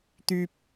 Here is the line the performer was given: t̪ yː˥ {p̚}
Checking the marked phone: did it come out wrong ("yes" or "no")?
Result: no